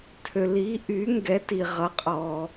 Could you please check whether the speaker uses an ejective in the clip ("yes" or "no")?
yes